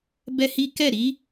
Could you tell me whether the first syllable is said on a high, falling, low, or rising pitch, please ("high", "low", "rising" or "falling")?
high